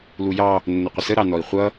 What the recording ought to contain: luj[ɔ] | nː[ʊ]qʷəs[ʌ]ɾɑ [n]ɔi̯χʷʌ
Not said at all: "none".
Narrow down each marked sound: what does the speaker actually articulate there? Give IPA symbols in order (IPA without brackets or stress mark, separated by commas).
ɑ, ʊ, ə, n